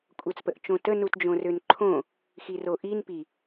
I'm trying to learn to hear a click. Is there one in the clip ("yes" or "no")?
yes